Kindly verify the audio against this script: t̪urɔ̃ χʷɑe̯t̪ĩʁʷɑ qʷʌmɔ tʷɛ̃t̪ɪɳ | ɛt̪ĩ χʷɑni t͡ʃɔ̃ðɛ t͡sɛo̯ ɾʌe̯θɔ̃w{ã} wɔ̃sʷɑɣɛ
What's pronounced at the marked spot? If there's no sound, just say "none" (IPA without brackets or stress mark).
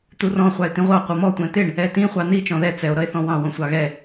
ɑ̃